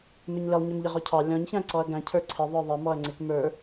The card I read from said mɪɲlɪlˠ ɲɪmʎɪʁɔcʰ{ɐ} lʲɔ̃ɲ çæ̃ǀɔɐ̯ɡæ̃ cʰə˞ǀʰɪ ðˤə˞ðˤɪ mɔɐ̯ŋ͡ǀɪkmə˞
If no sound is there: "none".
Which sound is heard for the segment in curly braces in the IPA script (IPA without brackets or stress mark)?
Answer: ɑ